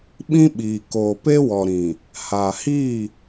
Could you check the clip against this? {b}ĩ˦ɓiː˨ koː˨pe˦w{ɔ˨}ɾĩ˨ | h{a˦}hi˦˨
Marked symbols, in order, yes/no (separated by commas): no, yes, no